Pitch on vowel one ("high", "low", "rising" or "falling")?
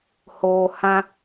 low